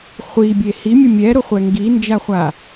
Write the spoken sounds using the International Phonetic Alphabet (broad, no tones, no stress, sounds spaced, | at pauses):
χʷ i bʲ e h i mʲ ʊ mʲ ɛ ɾ ʊ χʷ ɛ ŋ ɡ i n d͡ʒ a χʷ a